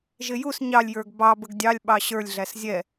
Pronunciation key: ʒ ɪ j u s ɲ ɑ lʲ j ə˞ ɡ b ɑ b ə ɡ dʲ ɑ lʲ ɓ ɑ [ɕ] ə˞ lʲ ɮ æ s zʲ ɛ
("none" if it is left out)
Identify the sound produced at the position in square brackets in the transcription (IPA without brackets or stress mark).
ɕ